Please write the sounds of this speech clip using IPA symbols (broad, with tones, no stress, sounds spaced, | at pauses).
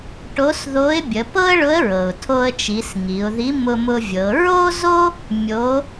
ʈ o˧˥ s ð o˧˥ ɪ̯ bʲ ə˩˧ p ɤ˥ ə̯ ɭ ʊ˧˥ ə̯ ɹ ɤ˩ ʊ̯ tʰ o˧ ə̯ t͡ʃ i˩˧ s ŋ i˩˧ ʊ̯ ð i˧˥ m ʊ˧ m ʊ˧ vʲ ɤ˩˧ ɹ o˥ z o˥ | mʲ o˧˥